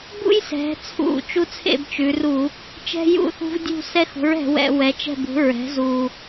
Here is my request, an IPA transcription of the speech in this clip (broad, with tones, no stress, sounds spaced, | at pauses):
b ṵ˦ j s ɛ̤˩˧ t͡sʰ ṵ˧˩˧ t͡ʃ u˦ t͡sʰ ḛ˥˨ b t͡ʃ ʉ˩˧ r u˧˩˧ | t͡ʃ ɛ̤˦ j ṵ˥˨ θ ṳ˦ v dʲ ṳ˥˨ s ɛ˦ x ṳ˩˥ ɹ ɛ̤˩˧ w ɛ̰˧˩˧ w ɛ˩˥ t͡ʃ ɛ̤˥˨ b ṳ˩˥ ɹ ɛ̤˩˥ z u˨˩